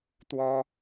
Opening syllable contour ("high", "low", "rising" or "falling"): high